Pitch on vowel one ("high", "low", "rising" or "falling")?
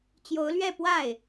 rising